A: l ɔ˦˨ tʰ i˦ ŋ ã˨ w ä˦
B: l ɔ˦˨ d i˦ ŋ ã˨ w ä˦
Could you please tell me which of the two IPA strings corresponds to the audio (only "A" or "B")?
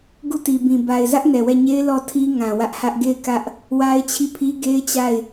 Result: A